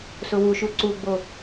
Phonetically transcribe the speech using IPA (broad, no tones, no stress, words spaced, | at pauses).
sʊwuʃu ǀuɡ͡bo